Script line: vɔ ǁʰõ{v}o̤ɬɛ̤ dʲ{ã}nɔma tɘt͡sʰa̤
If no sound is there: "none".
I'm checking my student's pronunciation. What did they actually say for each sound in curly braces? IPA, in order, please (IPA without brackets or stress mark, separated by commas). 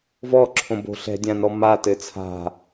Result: b, ã